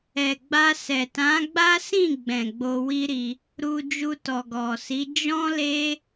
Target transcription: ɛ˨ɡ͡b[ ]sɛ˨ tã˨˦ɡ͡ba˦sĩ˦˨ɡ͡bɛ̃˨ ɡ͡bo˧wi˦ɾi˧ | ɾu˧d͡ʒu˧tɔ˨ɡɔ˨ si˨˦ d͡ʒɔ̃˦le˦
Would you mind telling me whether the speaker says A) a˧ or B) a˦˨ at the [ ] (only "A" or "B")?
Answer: A